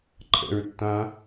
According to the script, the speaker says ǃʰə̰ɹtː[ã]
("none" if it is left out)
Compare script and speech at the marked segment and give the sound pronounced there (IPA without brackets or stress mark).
ã